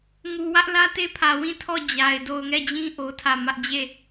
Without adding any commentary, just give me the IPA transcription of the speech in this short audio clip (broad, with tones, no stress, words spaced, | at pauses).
ŋu˨wä˦ʔ lä˦te˦pʰä˨ wĩ˦˨tʰɔ˦˨ d͡ʑa˨ɪ̯ do˨ʊ̯ŋɛ˦˨d͡ʑĩ˦ ʔo˦tʰä˦˨ mä˦ʔ d͡ʑe˦˨